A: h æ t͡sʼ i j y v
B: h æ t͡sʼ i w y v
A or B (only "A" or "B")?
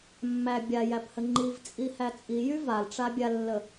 A